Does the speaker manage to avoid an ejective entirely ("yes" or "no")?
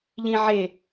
yes